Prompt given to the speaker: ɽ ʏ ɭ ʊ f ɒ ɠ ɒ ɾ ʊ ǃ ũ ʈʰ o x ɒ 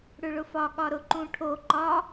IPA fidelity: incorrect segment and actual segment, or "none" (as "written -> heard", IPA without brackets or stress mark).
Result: x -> ǃ